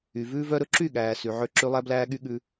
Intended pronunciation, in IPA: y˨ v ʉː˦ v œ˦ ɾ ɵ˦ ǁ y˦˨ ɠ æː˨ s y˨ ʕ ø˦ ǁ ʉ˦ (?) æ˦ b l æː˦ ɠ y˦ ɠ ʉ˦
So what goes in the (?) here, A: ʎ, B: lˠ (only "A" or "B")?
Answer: B